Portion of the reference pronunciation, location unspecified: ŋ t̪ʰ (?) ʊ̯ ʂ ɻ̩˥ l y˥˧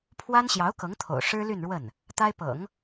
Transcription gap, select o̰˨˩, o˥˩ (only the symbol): o̰˨˩